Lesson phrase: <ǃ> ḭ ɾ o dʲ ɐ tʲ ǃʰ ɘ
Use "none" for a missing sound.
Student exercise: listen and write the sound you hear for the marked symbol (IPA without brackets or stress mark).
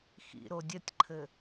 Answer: x